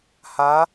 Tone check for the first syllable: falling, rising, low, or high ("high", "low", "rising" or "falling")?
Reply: rising